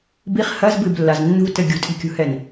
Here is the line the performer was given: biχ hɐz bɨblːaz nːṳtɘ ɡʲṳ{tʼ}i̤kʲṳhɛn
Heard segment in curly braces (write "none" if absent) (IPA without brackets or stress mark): tʼ